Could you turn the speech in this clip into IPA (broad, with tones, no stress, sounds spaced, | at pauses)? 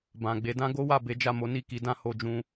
b ã˨ ɡ͡b e˧ d ã˦ ɡ o˦ w a˦˨ b e˨˦ d͡ʒ a˦˨ m o˨˦ n i˦˨ k i˨˦ d ã˦ h o˧ d͡ʒ ũ˧